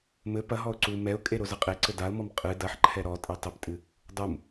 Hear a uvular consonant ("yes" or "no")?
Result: yes